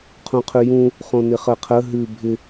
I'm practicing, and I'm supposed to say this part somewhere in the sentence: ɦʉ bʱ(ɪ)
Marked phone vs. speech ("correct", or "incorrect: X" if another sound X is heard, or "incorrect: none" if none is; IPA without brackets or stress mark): correct